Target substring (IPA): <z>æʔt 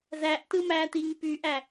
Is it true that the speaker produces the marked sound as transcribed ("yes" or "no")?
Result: yes